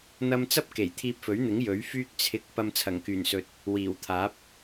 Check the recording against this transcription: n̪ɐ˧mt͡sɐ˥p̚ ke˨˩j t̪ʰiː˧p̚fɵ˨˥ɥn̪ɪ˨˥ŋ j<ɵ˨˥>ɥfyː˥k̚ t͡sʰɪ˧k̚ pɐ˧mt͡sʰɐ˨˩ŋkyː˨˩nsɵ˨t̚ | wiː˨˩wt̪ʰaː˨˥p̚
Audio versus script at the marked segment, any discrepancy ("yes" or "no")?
no